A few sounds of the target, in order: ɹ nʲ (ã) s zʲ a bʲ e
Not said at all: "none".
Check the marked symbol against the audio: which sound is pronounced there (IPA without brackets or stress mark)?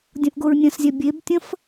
ɐ̃